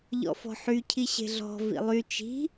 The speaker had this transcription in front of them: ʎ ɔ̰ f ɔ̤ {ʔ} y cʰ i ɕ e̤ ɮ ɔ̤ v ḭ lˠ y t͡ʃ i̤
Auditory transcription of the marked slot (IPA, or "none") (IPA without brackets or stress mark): ħ